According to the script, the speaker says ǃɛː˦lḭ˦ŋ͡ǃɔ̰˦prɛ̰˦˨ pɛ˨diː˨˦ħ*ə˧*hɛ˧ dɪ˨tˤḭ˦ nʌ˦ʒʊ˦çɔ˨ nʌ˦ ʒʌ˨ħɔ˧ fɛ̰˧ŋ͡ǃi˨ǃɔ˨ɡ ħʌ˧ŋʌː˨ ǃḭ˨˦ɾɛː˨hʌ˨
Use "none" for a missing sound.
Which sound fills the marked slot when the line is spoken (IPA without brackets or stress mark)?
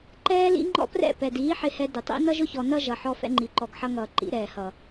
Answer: ɪ˧